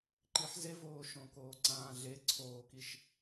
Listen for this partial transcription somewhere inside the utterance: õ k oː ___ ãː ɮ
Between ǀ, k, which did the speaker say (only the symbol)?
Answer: ǀ